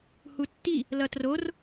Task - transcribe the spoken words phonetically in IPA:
hutːi | lʌtror

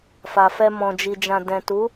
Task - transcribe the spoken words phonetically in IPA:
fa˨fɛ˧ mɔ̃˨d͡ʒi˨d͡ʒã˨ dɛ̃˨tu˨˦

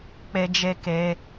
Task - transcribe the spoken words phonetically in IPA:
k͡pe˧ d͡ʒe˧ke˧

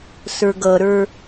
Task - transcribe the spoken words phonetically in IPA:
sə˞ɡʌɾə˞

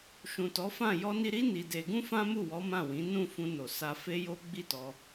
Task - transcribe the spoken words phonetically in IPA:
ʃũ˨tɔ˨˦fã˦˨ jɔ˧ni˧ɾi˦ ni˧de˧ ɡũ˦fã˦mu˦˨wɔ˨˦ mã˦˨wĩ˨˦ nũ˦˨ fũ˧ no˨ sa˧ fe˦jo˦ ɡ͡bi˦˨tɔ˧

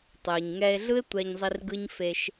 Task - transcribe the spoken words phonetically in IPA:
tˤɯː˨ɲŋɛː˧e̯ɮɯ˦e̯ tʷɛ˧ɲzˤi˧r ɡɯ˦ɲ fe˧ʃ

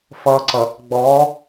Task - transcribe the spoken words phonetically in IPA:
fʌː˨ǀʌ˨ | ɡ͡bɔː˨˦

